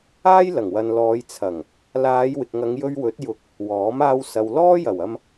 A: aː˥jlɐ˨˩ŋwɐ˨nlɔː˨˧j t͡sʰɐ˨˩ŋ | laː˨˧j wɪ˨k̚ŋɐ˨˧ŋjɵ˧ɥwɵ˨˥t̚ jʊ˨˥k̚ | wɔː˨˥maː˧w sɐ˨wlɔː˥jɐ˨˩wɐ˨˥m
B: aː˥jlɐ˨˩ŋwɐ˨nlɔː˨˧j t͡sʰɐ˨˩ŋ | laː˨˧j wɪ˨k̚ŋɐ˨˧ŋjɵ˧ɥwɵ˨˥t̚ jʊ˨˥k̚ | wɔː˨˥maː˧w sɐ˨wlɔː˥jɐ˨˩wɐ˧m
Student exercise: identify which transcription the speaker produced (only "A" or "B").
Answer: B